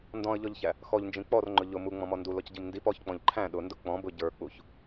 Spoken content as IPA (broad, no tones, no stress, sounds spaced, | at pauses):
n d ɔ̃ ə̯ ʎ ɔ ʎ ç æ | x ɔ ʎ n d͡ʒ ĩ k͡p ɔ r ŋ͡ǃ ʊ ʎ ʊ m u ŋ͡m ɔ̃ m ɔ n d u l ɔ c ɟ i m n d i p ɔ ç k͡p ɔ̃ ʎ ǃʰ æ̃ ɗ ʊ n d ʊ k͡p ɔ̃ b ʊ ɟ ə˞ k͡p u ç